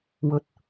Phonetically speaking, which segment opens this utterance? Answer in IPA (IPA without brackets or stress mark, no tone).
w